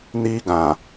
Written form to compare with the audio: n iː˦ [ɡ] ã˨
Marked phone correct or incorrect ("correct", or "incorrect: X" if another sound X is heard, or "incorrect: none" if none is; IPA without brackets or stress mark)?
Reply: correct